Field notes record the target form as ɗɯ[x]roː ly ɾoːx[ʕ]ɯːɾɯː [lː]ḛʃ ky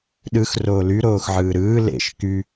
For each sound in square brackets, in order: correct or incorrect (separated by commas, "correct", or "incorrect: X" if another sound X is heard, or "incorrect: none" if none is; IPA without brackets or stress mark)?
correct, correct, incorrect: l